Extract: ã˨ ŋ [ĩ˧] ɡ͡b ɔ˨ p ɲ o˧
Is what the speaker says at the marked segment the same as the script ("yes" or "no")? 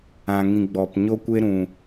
no